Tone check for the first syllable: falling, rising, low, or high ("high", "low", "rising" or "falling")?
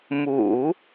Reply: low